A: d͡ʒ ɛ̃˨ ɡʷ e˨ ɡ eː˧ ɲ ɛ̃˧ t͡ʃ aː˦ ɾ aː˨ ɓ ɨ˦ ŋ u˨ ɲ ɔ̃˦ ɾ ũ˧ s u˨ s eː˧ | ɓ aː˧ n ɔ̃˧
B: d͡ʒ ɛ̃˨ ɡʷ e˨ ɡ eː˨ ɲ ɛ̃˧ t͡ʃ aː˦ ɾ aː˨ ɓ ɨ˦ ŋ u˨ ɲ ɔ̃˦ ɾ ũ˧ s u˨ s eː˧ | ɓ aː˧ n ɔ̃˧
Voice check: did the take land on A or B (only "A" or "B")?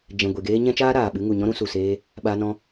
A